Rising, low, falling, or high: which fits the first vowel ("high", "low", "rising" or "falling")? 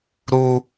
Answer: high